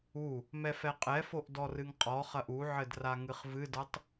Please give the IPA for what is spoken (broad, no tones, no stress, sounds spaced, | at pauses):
u | m ɛ f ɛ qʼ ɛ f o ʔ d ɔ r ɨ ŋ qʼ ɔ χ ɐ ʔ u ʕ ɘ d r a ŋ ɨ χ v ɨ d ɐ tˤ